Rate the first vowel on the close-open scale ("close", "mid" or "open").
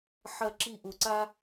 open